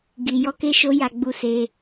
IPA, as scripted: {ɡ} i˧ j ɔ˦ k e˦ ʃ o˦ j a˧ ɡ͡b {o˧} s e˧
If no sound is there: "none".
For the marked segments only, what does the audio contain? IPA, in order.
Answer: ɡ, u˧

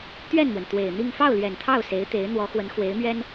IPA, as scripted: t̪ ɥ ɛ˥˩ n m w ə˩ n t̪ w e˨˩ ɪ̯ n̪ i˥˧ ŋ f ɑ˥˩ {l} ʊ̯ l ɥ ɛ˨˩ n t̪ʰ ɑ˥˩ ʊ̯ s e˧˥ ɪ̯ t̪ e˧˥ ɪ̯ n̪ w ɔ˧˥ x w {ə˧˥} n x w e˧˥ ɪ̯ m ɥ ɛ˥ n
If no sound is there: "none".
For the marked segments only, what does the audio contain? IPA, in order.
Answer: none, ə˧˥

